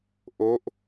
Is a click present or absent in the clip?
absent